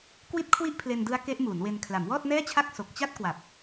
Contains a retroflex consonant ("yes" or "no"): no